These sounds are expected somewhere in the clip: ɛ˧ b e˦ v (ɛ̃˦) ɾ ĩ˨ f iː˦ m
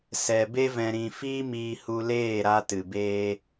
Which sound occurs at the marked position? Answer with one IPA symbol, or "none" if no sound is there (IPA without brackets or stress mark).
ɛ̃˧